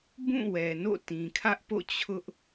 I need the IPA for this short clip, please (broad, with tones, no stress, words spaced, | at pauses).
bũ˦˨ wɛ˨no̰˦˨tĩ˨ kʰä˦ʔpo̰˦˨ t͡ɕʰʊ˦ʔ